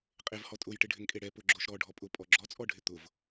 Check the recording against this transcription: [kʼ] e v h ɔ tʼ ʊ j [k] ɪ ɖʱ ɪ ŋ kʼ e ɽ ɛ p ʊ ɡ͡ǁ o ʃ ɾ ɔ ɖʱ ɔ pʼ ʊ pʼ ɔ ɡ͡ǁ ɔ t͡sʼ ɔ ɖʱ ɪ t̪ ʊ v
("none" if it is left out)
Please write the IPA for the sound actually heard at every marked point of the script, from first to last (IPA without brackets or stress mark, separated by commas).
qʼ, ʈ